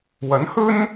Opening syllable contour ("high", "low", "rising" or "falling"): rising